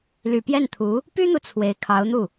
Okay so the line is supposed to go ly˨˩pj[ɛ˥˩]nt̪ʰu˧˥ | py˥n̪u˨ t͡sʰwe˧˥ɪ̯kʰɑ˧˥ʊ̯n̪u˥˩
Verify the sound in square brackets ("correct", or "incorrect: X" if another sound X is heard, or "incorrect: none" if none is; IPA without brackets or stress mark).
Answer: correct